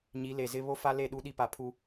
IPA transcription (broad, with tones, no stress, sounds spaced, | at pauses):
ɲ i˨˦ l e˨ z ɪ˦ β o˦ f a˦ l e˦˨ ɗ u˦ ɗ i˦ p a˨ pʰ u˦